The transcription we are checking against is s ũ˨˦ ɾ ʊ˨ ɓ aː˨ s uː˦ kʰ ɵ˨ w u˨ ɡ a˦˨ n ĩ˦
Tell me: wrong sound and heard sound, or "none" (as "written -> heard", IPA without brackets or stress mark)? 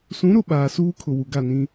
ɵ˨ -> ʊ˨